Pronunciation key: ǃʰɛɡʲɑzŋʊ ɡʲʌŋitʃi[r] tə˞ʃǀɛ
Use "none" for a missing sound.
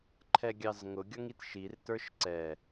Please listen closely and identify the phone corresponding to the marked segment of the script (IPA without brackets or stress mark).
r